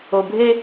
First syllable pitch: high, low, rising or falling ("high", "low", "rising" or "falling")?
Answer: low